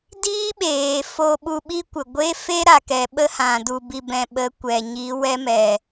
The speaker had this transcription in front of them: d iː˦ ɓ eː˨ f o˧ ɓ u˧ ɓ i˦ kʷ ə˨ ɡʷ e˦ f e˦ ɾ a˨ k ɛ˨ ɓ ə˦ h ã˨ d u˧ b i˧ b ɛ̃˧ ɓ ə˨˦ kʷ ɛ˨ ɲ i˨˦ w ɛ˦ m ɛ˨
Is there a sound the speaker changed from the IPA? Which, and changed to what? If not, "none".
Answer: none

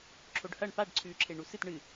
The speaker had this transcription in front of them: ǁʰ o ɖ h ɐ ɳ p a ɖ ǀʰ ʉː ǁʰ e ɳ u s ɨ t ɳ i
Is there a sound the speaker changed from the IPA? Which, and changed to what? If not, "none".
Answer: i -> ɨ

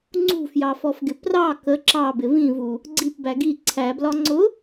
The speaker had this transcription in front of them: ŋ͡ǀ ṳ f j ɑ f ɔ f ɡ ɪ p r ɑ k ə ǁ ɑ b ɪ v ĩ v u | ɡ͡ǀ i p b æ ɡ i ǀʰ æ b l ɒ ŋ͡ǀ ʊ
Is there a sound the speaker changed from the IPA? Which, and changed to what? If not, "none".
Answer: none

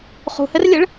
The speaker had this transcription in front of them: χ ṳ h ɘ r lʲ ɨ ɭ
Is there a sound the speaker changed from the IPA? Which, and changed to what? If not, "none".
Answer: none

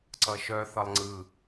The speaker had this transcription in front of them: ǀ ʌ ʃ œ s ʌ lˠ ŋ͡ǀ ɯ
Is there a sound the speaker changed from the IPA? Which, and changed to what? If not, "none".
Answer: s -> θ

